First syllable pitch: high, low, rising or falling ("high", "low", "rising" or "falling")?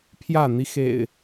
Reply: falling